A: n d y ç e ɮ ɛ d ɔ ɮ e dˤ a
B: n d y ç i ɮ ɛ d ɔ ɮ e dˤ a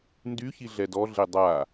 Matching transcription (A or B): B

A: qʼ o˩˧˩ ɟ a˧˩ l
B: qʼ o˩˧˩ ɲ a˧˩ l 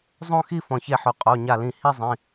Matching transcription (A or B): B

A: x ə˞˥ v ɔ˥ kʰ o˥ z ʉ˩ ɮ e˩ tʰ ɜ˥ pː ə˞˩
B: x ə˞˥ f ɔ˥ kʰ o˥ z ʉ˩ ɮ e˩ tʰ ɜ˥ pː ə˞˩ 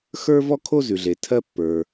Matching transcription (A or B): A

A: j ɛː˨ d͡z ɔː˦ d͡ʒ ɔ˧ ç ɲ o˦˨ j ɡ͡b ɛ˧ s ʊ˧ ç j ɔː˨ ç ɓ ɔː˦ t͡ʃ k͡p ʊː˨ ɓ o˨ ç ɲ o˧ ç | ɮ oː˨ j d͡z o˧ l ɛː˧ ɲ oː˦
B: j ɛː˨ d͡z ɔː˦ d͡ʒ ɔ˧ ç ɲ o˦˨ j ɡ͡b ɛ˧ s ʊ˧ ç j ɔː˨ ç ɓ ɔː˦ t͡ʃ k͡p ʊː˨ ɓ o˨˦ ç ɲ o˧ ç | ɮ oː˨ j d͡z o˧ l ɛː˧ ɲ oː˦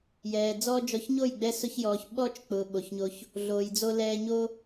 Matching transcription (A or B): A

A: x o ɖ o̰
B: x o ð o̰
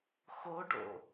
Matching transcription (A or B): A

